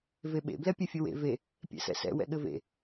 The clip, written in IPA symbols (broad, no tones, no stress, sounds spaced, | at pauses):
v e ɓ ḛ b l ɛ pʲ e fʲ ɘ w ḛ v e | pʲ ɛ̰ s ɛ̰ s ɛ̰ w ɛ̰ ɠ ɘ v ḛ